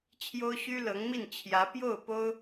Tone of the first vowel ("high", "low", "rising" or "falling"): high